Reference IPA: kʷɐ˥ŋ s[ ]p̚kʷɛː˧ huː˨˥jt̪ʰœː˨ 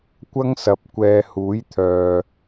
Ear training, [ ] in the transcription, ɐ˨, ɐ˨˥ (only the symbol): ɐ˨˥